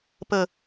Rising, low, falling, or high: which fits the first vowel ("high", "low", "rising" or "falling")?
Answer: low